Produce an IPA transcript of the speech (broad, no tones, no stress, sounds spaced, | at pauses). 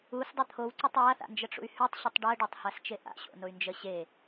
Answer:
u s dˤ ə t̪ʰ o w ǀ ʉ tˤ w a θ a̰ n d͡ʒ ə ʈ͡ʂ ṵ y̯ h ʉ tˤ ɕ ʉ tˤ ɖ ɜ ɖ a tˤ h a s t͡ʃ e ʔ a̰ ɕ o̰ n o y̯ n d͡ʒ ə ɕ e